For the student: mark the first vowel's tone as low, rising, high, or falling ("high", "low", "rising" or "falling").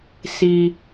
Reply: low